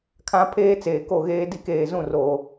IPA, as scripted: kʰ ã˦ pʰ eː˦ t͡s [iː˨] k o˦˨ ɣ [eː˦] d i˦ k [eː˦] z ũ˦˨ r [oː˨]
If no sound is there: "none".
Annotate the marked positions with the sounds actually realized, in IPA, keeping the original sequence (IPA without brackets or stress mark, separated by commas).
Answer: eː˨, eː˦, eː˨, oː˨